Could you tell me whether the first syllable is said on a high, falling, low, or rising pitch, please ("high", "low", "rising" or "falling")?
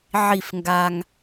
falling